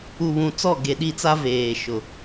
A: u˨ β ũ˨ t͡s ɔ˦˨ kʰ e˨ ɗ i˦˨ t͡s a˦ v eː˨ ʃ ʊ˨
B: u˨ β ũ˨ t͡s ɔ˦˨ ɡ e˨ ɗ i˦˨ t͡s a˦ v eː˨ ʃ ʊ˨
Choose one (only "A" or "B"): B